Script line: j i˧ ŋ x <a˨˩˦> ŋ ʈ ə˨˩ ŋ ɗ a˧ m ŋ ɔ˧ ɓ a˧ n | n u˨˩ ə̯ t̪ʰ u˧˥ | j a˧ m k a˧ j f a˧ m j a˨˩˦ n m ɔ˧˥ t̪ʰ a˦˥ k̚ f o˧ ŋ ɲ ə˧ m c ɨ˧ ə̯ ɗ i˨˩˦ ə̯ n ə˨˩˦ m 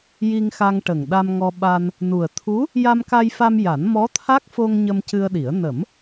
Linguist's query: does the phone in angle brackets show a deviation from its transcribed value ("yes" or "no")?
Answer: yes